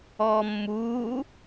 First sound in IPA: ɔː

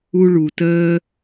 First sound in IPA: u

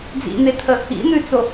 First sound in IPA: d͡z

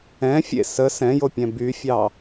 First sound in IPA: ɛ̃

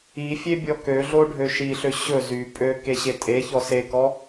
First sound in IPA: i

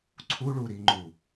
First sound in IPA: ǀʰ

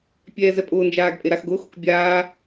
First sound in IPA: pʲ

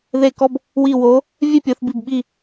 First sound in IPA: ð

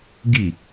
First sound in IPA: ɡ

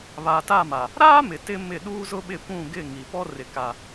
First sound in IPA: β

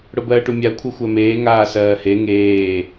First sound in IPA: ɽ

